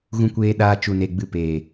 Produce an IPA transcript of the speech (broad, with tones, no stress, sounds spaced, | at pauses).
ɣ ũ˧ kʷ eː˧ ɗ aː˧ t͡ʃ u˨ n e˨ ɡ͡b ɨ˧ p eː˨